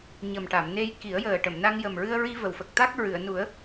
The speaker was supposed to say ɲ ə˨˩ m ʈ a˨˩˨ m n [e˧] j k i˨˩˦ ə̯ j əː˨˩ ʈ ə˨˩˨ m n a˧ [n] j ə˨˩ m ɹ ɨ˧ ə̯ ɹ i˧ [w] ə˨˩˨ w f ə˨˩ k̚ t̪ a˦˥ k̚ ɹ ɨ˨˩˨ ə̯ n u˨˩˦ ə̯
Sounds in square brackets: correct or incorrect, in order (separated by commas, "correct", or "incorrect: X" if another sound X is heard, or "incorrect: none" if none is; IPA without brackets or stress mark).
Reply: correct, incorrect: ŋ, incorrect: v